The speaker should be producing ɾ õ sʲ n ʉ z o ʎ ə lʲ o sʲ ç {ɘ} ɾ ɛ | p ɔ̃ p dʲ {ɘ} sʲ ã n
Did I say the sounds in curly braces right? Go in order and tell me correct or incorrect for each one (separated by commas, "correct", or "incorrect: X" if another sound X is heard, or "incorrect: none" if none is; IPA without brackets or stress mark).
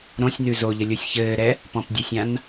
incorrect: ɘː, correct